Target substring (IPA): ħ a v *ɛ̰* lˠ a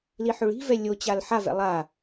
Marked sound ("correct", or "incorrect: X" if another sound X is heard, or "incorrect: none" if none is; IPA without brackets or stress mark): correct